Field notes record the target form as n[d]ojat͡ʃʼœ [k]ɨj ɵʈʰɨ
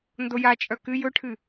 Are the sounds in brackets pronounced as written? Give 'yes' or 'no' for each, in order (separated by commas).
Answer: yes, yes